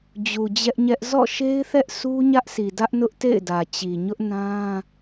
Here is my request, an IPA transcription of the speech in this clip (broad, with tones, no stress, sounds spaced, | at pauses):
d͡ʑ u˨ d͡ʑ ɛ˦ ʔ ɲ ɛ˦ ʔ z ɔ̰˦˨ ʃ e˦ ɪ̯ θ ɛ˦ ʔ s u˦ ɲ ä˦ ʔ s i˨ d ä˦ ʔ n ʊ˦ ʔ t ḛ˦˨ ɪ̯ d ä˨ t͡ɕ i˨ ɲ ʊ˦ ʔ n ã˦